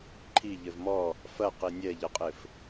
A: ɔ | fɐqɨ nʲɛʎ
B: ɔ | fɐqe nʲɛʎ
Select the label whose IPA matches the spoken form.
B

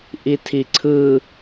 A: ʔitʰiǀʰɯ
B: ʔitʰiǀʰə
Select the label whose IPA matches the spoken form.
A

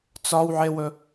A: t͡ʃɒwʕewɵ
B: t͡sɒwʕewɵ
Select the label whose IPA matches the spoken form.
B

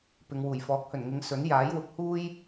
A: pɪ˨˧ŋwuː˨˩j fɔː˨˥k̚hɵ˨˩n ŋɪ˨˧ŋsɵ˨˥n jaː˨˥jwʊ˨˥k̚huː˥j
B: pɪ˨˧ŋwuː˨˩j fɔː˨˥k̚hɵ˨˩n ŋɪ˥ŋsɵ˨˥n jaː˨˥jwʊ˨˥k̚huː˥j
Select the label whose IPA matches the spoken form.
A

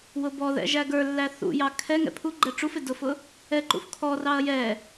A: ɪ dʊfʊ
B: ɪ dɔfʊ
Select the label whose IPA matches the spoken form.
A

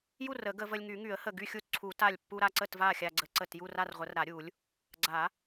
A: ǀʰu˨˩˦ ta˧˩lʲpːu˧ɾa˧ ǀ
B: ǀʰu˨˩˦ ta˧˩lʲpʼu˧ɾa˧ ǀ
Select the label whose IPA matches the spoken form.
A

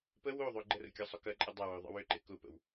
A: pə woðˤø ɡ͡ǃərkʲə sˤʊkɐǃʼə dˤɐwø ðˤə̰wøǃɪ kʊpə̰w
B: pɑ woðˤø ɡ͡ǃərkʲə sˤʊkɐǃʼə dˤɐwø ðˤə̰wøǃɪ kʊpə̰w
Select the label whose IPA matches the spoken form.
A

